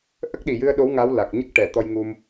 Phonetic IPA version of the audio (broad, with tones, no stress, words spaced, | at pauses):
ʔə˦˥k̚ɗi˨˩jɨ˧ə̯ ɗo˧˥w ŋa˧˥wla˨˩k̚ ɲə˦˥k̚ʈɛ˨˩˨ t̪ɔ˧jŋu˧m